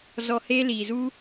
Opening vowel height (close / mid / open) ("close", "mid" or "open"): mid